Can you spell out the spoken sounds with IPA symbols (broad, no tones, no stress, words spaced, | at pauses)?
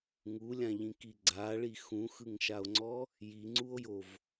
ŋulʲãʎĩki ɡ͡ǀaɭi xũxɯŋʃao̯ŋ͡ǀɔ | jiŋ͡ǀuo̯jov